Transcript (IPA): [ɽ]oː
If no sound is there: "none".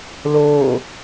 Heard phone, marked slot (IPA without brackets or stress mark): l